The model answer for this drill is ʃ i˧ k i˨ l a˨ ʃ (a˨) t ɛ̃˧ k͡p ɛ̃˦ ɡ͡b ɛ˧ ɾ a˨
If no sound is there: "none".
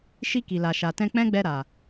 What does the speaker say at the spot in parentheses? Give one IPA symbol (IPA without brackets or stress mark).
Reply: a˨